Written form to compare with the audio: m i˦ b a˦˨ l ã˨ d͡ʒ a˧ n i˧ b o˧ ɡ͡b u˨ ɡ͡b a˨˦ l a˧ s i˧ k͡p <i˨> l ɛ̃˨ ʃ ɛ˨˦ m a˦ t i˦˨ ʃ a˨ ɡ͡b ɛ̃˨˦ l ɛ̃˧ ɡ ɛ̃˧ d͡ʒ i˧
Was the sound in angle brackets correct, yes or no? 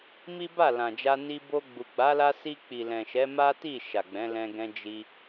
yes